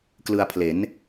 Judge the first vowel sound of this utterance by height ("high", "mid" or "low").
high